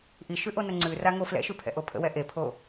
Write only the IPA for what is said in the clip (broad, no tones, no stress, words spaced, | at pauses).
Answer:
ʔiʃʉʔonə ŋ͡ǀʉraŋo flɛ̰ʃʉpʰɛ̰ʔo pʰə̰wɛ ʔepʰo